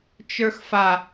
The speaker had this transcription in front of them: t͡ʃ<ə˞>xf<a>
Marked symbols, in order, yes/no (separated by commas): yes, yes